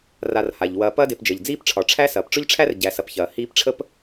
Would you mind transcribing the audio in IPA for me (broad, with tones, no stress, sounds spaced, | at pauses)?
r a˨ r h a˩ ʎ w ɐː˨ p ɐː˦ d e˨ p d͡ʒ əː˩ ʎ d͡z iː˥ p ʈ͡ʂʰ ɒ˩ ʈ͡ʂʰ æ˥ s ɐː˩ p ʈ͡ʂ ʊ˥ ʎ ʈ͡ʂʰ æ˥ r ɟ æ˨ s ɐ˨ p ç ɐː˩ h iː˦ p ʈ͡ʂʰ ə˥ p